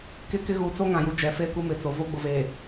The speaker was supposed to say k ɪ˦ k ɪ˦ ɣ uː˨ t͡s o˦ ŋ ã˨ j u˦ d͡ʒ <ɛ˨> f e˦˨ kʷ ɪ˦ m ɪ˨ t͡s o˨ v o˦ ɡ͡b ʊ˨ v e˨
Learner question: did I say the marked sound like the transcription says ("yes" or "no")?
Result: yes